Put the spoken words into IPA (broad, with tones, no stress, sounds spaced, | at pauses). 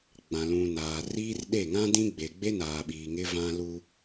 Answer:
ɡ͡b ã˨ l ũ˨ n aː˨ r iː˦ r ɗ e˦˨ ŋ ã˦ d ĩ˦ ɡ͡b e˨ ɡ͡b e˦ n aː˨ ɓ iː˨ ŋ ɪ˦ v ã˦ l u˦